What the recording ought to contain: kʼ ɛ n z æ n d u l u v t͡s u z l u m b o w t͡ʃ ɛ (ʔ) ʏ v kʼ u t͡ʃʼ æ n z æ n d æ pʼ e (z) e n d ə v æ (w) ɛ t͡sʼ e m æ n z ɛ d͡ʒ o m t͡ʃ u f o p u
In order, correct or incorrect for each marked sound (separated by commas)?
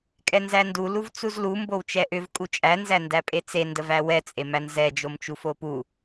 correct, incorrect, correct